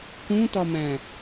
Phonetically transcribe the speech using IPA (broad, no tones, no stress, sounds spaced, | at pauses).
k ũ t ɒ m æ̃